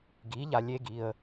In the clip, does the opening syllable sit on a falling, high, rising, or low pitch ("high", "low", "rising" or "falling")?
rising